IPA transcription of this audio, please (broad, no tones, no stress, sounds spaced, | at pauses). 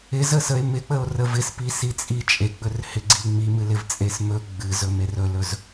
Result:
ɪ z ə s ə e̯ m ɪ k͡p ə o̯ r ə v ɪ s p i s i t͡sʼ i t͡ʃʼ e ɡ͡b ɵ r h ɪ ɡ͡ǀ i ŋ͡m i m ɨ l ɪ v t͡sʼ e s m ɵ ɡ͡b ɨ z ɵ m e r ɵ l ɵ z